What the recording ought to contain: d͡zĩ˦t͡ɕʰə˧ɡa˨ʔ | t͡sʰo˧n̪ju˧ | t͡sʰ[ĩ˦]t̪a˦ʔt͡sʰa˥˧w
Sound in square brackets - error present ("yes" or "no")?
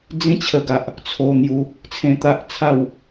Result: yes